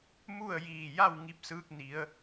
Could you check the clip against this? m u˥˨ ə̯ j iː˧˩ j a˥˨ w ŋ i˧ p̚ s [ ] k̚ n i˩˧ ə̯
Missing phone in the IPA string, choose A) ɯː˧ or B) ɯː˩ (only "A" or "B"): A